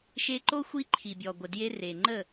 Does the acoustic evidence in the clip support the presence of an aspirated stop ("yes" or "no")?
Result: yes